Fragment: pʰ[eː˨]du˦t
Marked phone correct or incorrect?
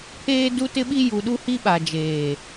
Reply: incorrect